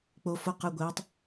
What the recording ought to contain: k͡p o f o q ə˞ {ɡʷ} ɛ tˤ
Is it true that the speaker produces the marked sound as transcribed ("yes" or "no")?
yes